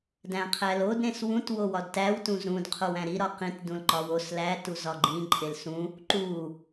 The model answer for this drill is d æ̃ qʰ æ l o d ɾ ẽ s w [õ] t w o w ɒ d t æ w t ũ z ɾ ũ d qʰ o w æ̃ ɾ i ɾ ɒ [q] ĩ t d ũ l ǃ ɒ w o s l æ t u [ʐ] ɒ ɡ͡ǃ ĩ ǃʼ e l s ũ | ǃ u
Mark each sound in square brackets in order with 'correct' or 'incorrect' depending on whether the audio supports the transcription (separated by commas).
incorrect, correct, incorrect